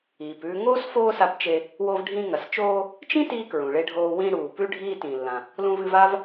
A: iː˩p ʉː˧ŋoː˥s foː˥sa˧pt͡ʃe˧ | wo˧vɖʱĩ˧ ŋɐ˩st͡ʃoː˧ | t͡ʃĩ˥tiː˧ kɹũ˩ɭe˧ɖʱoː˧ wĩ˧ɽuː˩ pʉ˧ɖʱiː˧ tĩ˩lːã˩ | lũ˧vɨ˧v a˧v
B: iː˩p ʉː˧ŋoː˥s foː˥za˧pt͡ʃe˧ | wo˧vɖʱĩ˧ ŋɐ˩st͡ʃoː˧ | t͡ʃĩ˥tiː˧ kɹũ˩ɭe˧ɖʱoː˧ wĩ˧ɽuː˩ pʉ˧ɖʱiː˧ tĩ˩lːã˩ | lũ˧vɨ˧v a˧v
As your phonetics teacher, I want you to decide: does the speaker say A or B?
A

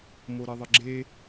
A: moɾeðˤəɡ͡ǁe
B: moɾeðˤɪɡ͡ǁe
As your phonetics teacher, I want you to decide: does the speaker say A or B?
B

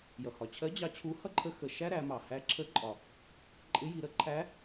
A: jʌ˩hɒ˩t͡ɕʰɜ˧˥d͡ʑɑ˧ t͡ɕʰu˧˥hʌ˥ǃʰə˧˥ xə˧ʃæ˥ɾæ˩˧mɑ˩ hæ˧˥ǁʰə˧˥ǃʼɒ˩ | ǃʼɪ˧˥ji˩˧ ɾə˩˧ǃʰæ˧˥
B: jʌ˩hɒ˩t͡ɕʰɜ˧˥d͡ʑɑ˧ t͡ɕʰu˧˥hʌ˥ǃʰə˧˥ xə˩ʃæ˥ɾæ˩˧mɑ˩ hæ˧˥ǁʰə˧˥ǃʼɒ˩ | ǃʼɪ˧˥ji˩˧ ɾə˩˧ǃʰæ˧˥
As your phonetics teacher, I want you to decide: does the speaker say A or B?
B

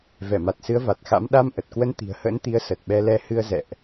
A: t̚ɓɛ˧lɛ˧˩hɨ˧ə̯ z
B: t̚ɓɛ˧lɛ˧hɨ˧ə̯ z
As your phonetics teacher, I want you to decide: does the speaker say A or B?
B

